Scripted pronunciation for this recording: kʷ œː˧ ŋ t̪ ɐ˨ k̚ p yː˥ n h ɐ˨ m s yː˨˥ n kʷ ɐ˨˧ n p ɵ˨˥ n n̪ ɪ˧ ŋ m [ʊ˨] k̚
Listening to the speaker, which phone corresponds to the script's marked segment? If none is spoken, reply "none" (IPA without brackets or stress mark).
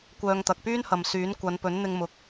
ʊ˨